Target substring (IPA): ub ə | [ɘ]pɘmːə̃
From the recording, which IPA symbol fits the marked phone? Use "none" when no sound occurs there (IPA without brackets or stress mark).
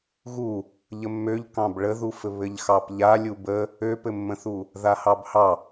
ø